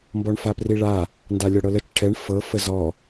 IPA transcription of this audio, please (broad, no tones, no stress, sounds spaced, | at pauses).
m b ɔ ɳ f a p r i ɭ a | n d a lʲ ɔ ɽ ɤ l ə t͡ʃ ʈʰ ɛ ɳ f ɤ f ə z ɔ